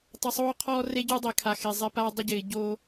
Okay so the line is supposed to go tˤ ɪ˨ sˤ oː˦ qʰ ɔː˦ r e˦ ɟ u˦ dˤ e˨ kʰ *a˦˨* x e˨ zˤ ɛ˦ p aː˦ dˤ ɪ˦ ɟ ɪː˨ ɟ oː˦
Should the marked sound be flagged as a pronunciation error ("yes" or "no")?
yes